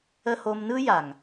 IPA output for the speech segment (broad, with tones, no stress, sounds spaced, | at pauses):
ə˦ h o˧ m n ɯ˦ j a˨ ŋ